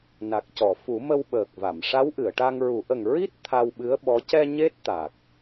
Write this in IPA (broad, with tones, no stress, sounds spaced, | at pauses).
n a˨˩ k̚ c ɔ˨˩˨ f u˨˩˦ m ə˧ w ɓ əː˨˩ k̚ v a˨˩˨ m ʂ a˧˥ w ʔ ɨ˨˩˨ ə̯ ʈ a˧ ŋ ɹ u˨˩˦ ʔ ə˨˩ ŋ ɹ i˦˥ t̚ t̪ʰ a˧ w ɓ ɨ˧˥ ə̯ ɓ ɔ˧˥ c ɛ˧ ɲ e˦˥ t̚ t̪ a˨˩ k̚